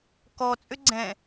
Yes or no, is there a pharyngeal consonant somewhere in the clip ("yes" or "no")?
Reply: no